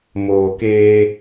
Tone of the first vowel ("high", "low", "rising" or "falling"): low